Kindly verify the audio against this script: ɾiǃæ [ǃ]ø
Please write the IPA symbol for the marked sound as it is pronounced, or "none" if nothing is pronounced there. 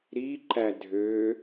dʱ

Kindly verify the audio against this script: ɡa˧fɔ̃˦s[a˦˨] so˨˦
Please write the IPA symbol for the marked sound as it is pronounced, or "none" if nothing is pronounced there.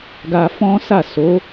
a˦˨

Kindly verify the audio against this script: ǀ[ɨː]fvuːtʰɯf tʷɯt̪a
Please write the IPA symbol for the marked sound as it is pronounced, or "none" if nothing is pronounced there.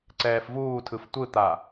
ɛː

